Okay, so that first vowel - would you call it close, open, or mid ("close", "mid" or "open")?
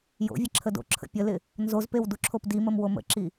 mid